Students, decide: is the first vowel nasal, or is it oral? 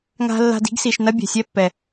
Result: oral